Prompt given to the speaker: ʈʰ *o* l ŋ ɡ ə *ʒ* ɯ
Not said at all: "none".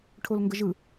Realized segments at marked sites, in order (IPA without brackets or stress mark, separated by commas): o, ʒ